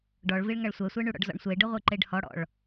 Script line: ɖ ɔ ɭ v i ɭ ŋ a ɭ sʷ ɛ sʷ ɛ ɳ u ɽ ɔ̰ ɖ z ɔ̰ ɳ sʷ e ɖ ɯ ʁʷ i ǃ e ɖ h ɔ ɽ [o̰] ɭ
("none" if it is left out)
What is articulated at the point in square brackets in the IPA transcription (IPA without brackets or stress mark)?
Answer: ɔ̰